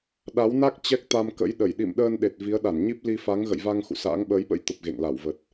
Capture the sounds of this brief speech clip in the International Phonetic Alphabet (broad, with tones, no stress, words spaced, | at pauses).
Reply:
ɗa˨˦wna˦˥k̚ t͡ɕɛ˦˥k̚t̪a˧mkə̰˧˥jɗə˧˩j ɗḭ˧˨mɗəː˧nɗe˨˩t̚ vi˨˦ə̯ɗa˧˩nɲi˦˥p̚ li˧fa˨˦ŋ ɣə̰˧˨jva˧ŋ xṵ˧˨sa̰ː˧˥ŋɓəː˨˦jɓə̰˧˥j t̪ə˨˩p̚ɣḛ˧˨ŋla˧˩wvə˨˩t̚